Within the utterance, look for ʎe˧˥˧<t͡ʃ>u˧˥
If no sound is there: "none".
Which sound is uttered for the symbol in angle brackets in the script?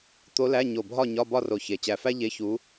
ç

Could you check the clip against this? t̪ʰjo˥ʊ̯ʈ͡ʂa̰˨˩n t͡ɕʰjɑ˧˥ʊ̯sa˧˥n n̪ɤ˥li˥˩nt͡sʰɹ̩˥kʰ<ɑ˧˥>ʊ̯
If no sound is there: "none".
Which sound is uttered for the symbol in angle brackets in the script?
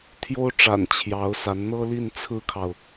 ɑ˨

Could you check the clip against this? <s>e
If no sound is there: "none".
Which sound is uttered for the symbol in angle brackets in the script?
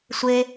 sʷ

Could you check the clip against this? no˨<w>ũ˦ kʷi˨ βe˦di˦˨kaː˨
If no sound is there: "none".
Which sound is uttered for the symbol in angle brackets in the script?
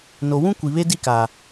w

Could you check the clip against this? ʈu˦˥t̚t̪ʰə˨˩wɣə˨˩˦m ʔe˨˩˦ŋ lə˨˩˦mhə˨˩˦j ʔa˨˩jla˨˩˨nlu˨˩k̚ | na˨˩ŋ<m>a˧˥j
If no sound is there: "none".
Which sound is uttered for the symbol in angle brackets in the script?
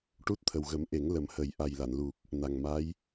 m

